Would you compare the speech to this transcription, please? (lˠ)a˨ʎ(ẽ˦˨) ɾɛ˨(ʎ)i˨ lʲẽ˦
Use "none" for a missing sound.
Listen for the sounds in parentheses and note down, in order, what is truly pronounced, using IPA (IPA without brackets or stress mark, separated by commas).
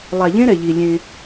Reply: lˠ, ẽ˦, ʎ